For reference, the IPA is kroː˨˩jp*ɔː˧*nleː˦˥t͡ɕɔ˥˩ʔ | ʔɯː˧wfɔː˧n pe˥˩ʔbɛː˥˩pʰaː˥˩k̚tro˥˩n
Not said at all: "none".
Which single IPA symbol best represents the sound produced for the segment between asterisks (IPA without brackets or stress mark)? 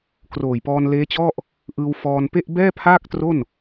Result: ɔː˧